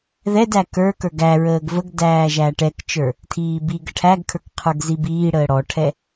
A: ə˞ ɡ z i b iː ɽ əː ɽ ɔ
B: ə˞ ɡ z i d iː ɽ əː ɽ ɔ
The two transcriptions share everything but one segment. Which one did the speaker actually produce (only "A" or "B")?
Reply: A